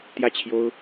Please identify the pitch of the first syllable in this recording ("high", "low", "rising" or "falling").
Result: falling